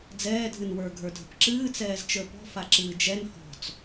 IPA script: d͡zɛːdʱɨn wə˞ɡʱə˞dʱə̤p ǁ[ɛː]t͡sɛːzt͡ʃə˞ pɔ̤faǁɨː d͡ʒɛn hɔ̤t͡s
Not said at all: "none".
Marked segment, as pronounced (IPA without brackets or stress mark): ɨː